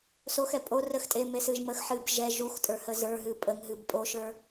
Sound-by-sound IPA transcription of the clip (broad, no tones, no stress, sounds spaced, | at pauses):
s o x ɛ pʼ o r ə x tʼ e m e s ɨ ʒ m ə x ħ ɨː b ʒ ɛ ʒ u x tʼ ə˞ h ə z ə˞ ɦ ɨ pʼ ə ŋ ɦ ɨ b pʼ o ʃ ə˞